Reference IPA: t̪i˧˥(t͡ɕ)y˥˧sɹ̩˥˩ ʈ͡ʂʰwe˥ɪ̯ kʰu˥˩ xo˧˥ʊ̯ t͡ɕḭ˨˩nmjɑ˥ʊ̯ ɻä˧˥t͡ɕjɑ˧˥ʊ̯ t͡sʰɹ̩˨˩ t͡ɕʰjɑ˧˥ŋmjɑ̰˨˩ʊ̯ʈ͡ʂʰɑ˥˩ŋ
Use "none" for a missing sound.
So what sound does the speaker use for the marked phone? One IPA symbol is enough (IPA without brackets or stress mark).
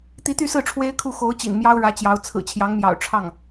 t̪